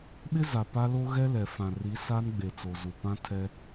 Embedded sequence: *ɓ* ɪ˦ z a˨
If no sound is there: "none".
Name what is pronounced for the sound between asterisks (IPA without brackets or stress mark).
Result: ɓ